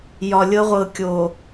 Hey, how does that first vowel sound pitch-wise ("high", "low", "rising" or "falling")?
low